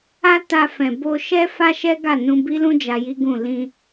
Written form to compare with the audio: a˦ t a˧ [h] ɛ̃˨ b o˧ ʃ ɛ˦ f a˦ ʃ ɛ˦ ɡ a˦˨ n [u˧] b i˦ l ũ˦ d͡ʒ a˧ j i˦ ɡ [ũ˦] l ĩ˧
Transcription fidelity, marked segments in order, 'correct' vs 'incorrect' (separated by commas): incorrect, incorrect, incorrect